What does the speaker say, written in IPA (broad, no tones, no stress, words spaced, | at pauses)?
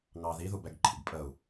ŋɑ ðiðubɛɡ ǃʰḭɡpʼəu̯